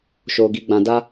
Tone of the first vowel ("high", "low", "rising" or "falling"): low